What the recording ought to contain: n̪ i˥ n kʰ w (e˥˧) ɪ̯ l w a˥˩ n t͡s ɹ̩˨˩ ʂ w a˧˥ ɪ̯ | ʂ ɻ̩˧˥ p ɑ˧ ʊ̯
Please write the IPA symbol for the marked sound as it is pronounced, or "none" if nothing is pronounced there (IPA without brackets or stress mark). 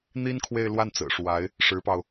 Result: e˥˧